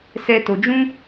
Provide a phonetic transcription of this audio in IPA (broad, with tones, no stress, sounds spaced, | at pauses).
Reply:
s ɛ˦ t o˧ d͡ʒ ũ˦